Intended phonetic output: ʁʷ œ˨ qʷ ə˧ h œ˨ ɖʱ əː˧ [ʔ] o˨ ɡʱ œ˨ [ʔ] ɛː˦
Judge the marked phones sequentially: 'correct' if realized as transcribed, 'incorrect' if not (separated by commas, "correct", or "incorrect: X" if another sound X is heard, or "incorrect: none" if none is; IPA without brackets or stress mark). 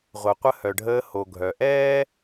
incorrect: h, correct